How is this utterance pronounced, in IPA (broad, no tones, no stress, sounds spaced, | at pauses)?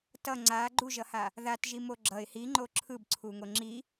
t ʌ ŋ͡ǀ a ɡ͡ǃ u ʒ ʌ h a | ð a t ʒ i m o ɡ͡ǁ ʌ ɪ̯ h i ŋ͡ǃ o ǁʰ ɯ b ǀʰ u ŋ o ŋ͡ǁ i